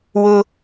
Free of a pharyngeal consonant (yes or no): yes